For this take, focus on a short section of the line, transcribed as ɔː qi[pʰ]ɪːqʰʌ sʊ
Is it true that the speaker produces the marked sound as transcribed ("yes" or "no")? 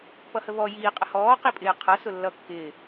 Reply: no